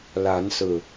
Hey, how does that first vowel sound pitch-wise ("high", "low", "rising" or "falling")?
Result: rising